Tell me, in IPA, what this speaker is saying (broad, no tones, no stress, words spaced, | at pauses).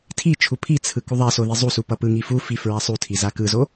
tʰit͡ʃʰu pʰit͡sʰɯ kuðˤaso ðizˤusu pʌpɯŋi fufi fɹasˤutʰi zakɯzo